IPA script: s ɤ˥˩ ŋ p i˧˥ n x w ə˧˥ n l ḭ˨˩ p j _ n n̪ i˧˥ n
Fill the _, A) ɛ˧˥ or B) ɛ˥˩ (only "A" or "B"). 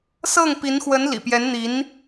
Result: A